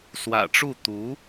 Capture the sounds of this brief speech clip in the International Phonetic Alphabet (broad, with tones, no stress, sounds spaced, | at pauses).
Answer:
s w ä̰˨˩ ʈ͡ʂ u˥˩ t̪ u˧˥